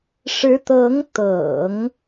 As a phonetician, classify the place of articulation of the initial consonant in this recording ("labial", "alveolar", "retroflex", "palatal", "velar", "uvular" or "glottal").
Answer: retroflex